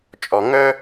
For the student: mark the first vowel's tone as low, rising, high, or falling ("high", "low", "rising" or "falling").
low